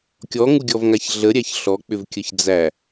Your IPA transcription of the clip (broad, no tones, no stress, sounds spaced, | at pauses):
kʲ ɔ ŋ u ɡʲ ɔ v ŋ a ç ɮ ə ɾʲ æ ç ɬ ɔ k͡p ʏ v kʲ ə ç d͡z æ